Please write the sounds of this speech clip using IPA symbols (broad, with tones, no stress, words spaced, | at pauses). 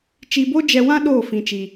t͡ʃi˧bo˦d͡ʒɛ˧wã˦ ɗoː˦˨fĩ˨t͡ʃi˨